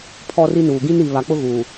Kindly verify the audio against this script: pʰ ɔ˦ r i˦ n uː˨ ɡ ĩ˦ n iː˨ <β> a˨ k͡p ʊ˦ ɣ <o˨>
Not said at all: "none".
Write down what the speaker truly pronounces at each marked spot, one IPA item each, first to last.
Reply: β, u˨

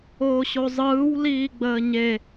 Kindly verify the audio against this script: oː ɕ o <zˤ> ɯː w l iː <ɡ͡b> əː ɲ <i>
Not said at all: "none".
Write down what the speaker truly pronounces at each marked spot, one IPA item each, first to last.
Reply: zˤ, ɡ͡b, e

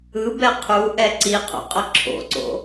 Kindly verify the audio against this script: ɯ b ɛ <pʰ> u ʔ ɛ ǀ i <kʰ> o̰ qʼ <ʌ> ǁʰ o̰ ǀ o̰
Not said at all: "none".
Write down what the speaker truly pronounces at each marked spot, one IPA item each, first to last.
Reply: qʰ, qʰ, ʌ

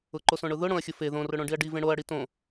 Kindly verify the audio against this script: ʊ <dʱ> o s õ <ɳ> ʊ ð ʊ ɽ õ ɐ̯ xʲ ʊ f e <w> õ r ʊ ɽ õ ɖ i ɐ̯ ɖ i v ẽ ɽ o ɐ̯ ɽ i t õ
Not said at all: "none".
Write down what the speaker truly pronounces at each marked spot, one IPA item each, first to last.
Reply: ǃ, ɳ, ð

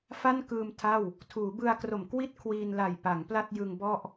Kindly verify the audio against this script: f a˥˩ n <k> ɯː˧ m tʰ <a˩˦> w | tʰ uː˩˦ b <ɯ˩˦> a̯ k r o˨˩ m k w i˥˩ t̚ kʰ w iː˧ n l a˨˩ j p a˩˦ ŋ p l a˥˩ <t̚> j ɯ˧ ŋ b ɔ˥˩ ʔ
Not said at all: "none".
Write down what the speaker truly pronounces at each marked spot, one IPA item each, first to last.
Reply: k, a˥˩, ɯ˧, t̚

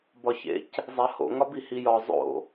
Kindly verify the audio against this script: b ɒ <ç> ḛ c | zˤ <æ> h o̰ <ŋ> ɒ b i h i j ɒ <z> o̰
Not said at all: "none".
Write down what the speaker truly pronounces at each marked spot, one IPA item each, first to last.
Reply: ç, æ, ŋ, zˤ

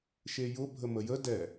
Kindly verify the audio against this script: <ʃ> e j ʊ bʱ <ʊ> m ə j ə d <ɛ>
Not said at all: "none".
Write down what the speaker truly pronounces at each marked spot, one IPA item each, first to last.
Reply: ʃ, ə, ɛ

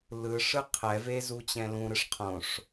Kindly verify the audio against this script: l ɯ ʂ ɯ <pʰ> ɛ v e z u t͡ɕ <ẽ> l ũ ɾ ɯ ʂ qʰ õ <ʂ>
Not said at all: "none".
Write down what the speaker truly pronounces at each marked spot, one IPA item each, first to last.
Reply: qʰ, ɛ̃, ʂ

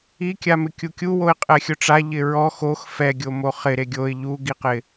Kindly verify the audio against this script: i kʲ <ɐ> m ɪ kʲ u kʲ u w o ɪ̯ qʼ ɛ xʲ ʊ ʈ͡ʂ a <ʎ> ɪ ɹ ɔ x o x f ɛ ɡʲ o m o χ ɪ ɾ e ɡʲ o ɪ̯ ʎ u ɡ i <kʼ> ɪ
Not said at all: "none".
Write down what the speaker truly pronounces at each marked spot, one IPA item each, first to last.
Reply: a, ʎ, q

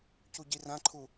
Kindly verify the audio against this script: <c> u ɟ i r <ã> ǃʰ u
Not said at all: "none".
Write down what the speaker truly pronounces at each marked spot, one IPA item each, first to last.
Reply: c, ã

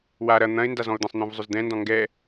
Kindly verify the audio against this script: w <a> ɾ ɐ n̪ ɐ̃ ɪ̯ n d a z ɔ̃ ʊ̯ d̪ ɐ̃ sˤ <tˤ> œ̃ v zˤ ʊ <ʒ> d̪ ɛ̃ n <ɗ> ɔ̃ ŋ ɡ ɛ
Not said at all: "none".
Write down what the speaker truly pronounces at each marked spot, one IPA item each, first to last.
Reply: a, n̪, z, d

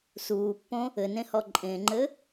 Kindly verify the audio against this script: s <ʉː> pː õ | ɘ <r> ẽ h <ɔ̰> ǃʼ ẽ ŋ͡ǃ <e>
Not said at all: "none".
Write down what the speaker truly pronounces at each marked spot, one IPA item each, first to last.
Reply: uː, n, ɔ, ɘ

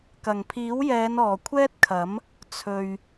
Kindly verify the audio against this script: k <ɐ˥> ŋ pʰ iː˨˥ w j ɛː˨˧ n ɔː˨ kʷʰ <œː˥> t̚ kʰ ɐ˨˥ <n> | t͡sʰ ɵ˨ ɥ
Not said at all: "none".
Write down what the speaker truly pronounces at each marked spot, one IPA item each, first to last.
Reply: ɐ˨˩, ɛː˥, m

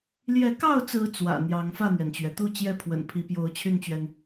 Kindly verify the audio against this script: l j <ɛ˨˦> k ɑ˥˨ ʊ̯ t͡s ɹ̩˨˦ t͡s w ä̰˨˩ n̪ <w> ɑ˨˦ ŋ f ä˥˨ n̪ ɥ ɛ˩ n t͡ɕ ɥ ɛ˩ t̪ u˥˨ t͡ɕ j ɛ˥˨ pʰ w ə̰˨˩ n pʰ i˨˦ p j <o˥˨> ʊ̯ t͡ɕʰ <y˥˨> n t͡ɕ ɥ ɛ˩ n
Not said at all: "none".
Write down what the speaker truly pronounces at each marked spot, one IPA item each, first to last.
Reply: ɛ˨˦, j, o˨˦, y˥˨

